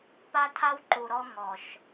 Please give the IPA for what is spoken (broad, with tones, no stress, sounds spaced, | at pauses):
p a˧ tʰ a˧ w ǃ u˨ ɾ ɔ˧ ŋ ɔ˨ ʃ